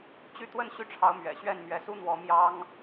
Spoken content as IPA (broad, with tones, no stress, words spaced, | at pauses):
t͡ɕy˥˧t̪wə˥˧n ɕy˥˩ʈ͡ʂʰɑ˧˥ʊ̯mɥɛ̰˨˩ ɕɥɛ˥˩nmɥɛ˧˥su˥n̪wɔ˧˥ mjɑ˥ŋ